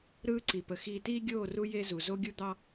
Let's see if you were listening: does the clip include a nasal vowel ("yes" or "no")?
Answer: no